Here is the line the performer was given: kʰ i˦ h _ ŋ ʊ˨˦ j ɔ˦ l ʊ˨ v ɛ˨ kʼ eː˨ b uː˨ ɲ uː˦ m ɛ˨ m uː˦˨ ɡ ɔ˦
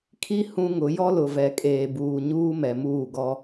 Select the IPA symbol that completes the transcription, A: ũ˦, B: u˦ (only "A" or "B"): A